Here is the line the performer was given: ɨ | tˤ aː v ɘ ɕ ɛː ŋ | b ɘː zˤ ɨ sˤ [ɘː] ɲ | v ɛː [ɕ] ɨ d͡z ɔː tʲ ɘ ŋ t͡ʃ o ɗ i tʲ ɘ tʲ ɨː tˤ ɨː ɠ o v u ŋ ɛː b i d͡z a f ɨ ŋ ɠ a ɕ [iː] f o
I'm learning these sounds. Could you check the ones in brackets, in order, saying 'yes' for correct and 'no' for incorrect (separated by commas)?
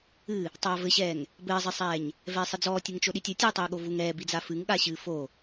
no, no, no